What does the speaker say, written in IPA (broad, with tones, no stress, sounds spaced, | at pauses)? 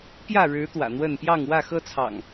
p j ä˥˨ ɻ ɻ̩˨˦ t̪ w ä̰˨˩ n̪ w ə˥˨ n p j ɑ˥˨ ŋ w ä˥˨ x ɤ˦ t͡sʰ ɑ̰˨˩ ŋ